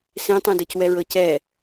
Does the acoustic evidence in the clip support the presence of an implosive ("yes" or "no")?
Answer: no